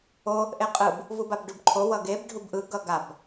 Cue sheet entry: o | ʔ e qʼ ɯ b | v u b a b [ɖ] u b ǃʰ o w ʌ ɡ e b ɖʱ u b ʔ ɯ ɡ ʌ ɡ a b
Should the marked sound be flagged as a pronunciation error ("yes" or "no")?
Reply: no